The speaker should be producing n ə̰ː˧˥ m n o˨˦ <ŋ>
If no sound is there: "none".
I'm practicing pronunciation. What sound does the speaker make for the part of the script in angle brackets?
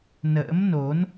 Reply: n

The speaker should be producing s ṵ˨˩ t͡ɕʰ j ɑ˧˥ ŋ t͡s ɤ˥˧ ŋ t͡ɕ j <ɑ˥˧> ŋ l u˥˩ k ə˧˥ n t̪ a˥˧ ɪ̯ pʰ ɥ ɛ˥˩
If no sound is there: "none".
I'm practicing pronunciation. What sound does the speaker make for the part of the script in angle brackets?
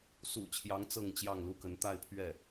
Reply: ɑ˥˧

